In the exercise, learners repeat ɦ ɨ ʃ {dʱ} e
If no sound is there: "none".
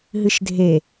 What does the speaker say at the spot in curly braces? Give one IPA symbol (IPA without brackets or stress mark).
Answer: dʱ